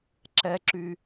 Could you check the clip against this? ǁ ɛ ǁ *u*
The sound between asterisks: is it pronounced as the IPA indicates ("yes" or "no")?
no